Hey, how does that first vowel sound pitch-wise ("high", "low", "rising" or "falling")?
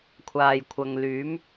low